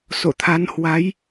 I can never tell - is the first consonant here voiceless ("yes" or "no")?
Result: yes